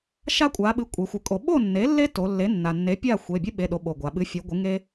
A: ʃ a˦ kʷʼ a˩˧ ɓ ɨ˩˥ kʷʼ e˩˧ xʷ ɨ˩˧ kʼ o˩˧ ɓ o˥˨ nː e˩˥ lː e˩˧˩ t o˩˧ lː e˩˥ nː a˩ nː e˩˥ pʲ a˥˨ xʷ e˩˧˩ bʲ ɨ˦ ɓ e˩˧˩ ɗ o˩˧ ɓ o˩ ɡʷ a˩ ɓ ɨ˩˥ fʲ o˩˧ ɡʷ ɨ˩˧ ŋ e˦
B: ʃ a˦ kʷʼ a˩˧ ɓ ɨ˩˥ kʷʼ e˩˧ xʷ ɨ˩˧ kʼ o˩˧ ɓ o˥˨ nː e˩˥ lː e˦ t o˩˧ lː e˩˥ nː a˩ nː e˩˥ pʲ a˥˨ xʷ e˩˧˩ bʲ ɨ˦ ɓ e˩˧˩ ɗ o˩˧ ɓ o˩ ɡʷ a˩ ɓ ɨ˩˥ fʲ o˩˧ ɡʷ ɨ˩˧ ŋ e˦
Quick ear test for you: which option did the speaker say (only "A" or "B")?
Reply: B